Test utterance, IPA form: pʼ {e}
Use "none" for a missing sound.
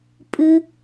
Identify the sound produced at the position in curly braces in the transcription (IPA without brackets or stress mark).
ɨ